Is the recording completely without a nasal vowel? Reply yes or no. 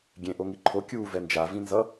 no